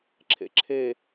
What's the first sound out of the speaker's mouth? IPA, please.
ǁʰ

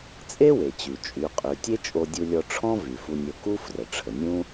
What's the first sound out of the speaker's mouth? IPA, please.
t͡sʼ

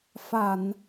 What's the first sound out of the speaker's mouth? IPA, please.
f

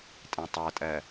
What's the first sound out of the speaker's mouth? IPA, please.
tʼ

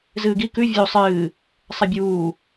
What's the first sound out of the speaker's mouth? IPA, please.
z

